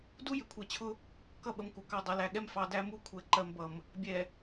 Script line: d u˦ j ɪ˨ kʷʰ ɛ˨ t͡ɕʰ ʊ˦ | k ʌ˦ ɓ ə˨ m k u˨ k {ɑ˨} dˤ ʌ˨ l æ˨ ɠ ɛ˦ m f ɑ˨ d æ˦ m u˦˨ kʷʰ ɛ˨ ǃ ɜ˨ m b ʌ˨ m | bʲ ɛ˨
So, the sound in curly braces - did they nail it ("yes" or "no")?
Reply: yes